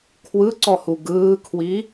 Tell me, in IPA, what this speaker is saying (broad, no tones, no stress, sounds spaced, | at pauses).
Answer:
kʰ w ɯ ǀ ɔ h u ɡ ɯː kʰ w i